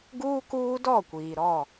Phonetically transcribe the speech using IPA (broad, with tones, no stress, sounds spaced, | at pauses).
ɡ uː˦ k uː˦ d ɔ˦˨ kʷ iː˨ ɾ ɔ˦˨